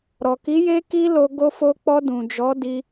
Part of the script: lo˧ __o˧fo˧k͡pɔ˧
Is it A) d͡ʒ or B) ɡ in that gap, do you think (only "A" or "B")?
B